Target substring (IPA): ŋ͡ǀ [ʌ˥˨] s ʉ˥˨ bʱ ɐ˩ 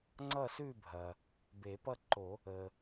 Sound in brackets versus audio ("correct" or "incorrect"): correct